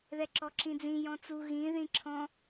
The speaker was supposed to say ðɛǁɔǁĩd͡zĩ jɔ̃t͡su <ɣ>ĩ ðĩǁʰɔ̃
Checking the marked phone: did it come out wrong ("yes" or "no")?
no